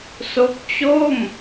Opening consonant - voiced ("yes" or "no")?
no